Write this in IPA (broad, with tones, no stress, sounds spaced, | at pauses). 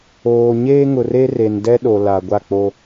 oː˨ ɲ eː˦ ŋ ʊ˨ r e˦ r e˨ n d ɛ˦ ɗ o˨ l a˨ ɡʷ a˦˨ k͡p o˦